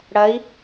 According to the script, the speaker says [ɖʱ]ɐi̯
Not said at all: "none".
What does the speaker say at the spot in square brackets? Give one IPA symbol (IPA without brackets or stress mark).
ɽ